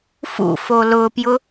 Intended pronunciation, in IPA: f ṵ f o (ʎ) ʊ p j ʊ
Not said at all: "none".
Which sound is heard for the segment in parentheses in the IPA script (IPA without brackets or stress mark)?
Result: l